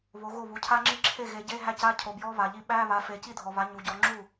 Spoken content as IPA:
β o˨˦ ɣ o˥˩ β u˨˦ cʰ a˦˥ ŋ͡ǁ i˦˥ ǁʰ e˥˩ ɣ e˨˦ ɟ e˧˥˧ ɦ æ˦˥ c a˧˥˧ cʰ o˨ b j ɔ˦˥ β a˨ ʎ i˦˥ ɓ æ˧˥˧ β a˨˦ f e˨˦ c i˥˩ dʱ ɔ˨ β a˨˦ ɲ u˨ ɟ ɔ˨˦ ŋ͡ǁ u˥˩

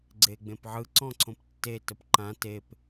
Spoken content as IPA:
ɡ͡ǀ e ɡ͡b ẽ p ʕ ɯ ǀ ɔ̃ ǀʰ õ p tː e t ə p ǃ ã t e p

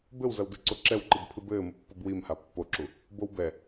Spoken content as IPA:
b ɘ w z ɐ w d ɨ ǀ o ǁ ɛ w ǃ ɨ b pʰ ɨ b ɘː m u pː o b w i m h a pː o ǁ u | b o w b ɛ

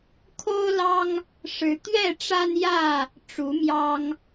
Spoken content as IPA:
kʰ o˦ ʊ̯ l ɑ˦ ŋ | ʂ ɻ̩˨˦ t̪ ɥ ɛ˥˨ ʈ͡ʂ a˦ n j ä˥˨ | ʈ͡ʂ u˨˦ m j ɑ˦ ŋ

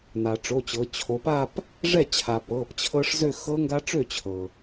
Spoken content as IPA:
n a˩ ʈ͡ʂ o˩˧˩ t͡ɕ ɤ˩˧ t͡ɕʰ o˩˧ p a˥˧ p | ʐ ɛ˥˩ t͡ɕʰ a˩ p ɤ˩˧˩ p t͡ɕʰ ɤ˦˥ ʂ z ø˥˧ x ɤ˦˥ ŋ ɡ a˦˥ ʈ͡ʂ ø˥˩ t͡ɕʰ ɤ˩

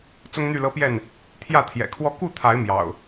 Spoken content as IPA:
t͡s ʊ˦ ŋ n̪ y˥˨ l ɤ˦ p j ɛ˥˨ n | t̪ʰ j ä˥˨ t̪ʰ j ɛ̰˨˩ kʰ w ɔ˥˨ k u˥˨ t̪ʰ a˨˦ ɪ̯ m j ɑ̰˨˩ ʊ̯

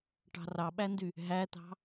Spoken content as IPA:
ʈ ɑ̤ r ɑ ɓ æ n d y | ɦ æ t̪ ɑ̤

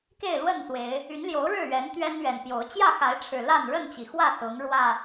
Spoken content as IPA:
k e˥˨ ɪ̯ l w ə˥˨ n s w e˨˦ ɪ̯ | y˨˦ n l j o˨˦ ʊ̯ ɻ ɻ̩˥˨ ɥ ɛ˨˦ n t̪ ɥ ɛ˦ n ɥ ɛ˨˩ n p j o˨˦ ʊ̯ t͡ɕ j ä˥˨ x a˨˦ ɪ̯ ʈ͡ʂʰ ɻ̩˨˩ l a˥˨ n ɻ ə˥˨ n t͡ɕ i˩ x w ä˥˨ s ʊ˨˦ ŋ ɻ w ä˨˩

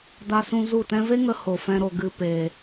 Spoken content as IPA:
d a˧ s ũ˧ z u˦˨ t ɛ̃˦ v e˦ ŋ ə˧ h o˨ f ɛ̃˧ ɾ o˨ ɡ ɨ˨ p e˨

